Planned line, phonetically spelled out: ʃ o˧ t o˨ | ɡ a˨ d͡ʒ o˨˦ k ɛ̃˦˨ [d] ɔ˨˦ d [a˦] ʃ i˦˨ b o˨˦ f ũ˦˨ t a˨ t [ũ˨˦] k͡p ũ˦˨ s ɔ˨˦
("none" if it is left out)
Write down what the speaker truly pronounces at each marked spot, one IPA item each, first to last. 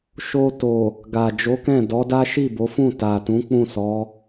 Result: d, a˦, ũ˨˦

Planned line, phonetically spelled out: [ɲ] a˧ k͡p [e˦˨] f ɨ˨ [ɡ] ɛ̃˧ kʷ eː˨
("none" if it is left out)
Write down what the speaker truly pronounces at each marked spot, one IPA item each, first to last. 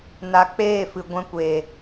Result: n, eː˦˨, ɡʷ

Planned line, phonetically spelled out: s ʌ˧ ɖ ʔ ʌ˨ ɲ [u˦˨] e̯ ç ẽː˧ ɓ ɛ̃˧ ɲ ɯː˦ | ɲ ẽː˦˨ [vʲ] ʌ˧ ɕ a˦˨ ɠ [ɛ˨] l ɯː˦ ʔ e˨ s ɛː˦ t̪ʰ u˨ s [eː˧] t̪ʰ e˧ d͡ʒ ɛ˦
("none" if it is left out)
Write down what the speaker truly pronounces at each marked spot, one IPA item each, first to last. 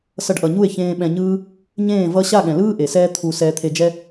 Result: u˦˨, v, ɛ̃˨, ɛː˧

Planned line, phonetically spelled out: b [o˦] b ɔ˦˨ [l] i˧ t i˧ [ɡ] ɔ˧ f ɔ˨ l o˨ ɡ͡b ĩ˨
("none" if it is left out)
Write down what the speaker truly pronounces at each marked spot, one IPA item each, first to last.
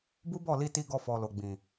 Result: u˦, l, ɡ

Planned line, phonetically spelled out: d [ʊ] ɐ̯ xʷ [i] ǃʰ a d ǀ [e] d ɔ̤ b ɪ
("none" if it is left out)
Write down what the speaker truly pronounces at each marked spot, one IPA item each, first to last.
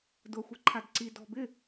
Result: ʊ, e, i

